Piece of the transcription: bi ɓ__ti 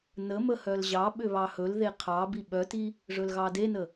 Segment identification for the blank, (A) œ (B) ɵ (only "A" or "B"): A